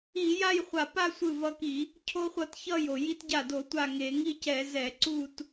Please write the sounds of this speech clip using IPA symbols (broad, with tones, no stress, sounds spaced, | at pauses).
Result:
i˧˩˧ j a˥˧ j χʷ a˧˩ p a˥˧ sʷ ɯ˧˩ v ʌ˧ k i˧˩˧ | cʰ o˧ χʷ ʌ˧˩˧ t ç ʌ˥˩ j o˩ j i˧ t ɟ a˧˩ d o˧˩˧ tʷ a˧˩ ŋ e˧˩˧ ŋ i˥˧ c ɛ˧˩˧ z ɛ˧˩˧ ǀ u˥˧ t